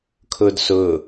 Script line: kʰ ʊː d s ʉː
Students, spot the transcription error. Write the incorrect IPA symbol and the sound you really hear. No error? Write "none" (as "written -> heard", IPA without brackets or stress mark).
ʉː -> ʊː